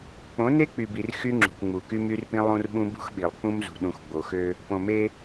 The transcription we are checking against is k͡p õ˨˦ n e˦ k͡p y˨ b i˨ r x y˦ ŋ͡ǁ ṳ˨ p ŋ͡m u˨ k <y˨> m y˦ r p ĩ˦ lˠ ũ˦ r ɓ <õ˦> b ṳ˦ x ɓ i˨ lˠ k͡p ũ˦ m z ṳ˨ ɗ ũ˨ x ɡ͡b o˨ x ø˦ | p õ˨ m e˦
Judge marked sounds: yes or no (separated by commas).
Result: no, no